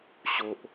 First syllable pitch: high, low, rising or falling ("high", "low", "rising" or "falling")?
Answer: low